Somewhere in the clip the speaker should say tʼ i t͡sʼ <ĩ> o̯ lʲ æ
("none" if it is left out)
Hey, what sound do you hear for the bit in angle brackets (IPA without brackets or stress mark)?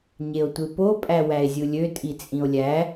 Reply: ĩ